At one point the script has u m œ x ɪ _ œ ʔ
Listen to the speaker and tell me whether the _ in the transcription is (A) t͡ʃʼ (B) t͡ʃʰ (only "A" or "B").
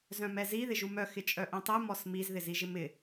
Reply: A